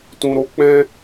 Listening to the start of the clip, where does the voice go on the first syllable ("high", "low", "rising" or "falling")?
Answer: low